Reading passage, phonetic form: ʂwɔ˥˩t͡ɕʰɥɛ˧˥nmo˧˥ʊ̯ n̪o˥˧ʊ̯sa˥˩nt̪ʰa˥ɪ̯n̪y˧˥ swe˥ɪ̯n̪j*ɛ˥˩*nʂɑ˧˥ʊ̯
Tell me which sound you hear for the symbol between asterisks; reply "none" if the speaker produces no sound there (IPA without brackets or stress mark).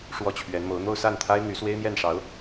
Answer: ɛ˥˩